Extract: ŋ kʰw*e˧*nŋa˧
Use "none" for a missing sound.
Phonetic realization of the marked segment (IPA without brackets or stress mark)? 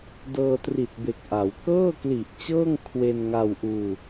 e˧